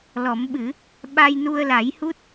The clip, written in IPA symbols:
l ɔ˨˩˦ m ɓ ɨ˨˩˦ | ɓ a˧ j n u˧ ə̯ l a˨˩˦ j h u˦˥ t̚

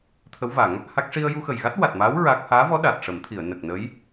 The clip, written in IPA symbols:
t̪ʰ ə˧˥ w v a˨˩˦ ŋ | h a˦˥ k̚ ʂ i˧ ə̯ j u˧ x ə˨˩ j ɣ a˦˥ t̚ w a˨˩ t̚ m aː˧˥ w ɹ a˦˥ k̚ h aː˧˥ v ɔ˧˥ ɗ a˨˩ t̚ ʂ ə˨˩˦ m t̪ʰ i˨˩˨ ə̯ n ə˨˩ k̚ n ə˧˥ j

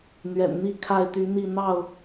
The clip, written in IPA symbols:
n̪ ɥ ɛ̰˨˩ n n̪ i˥˨ kʰ a˥˨ ɪ̯ t̪ y˨˦ n̪ i˥˨ n̪ ɑ˥˨ ʊ̯

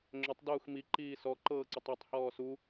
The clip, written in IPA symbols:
ŋ͡ǁ ʏ tˤ d uː x m i ǃ iː s ɔ ǃ ɤː ǀ ʏ tˤ a tˤ h ɔː s u

